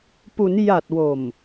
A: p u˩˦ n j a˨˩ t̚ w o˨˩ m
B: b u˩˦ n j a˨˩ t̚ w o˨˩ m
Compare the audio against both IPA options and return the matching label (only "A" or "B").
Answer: A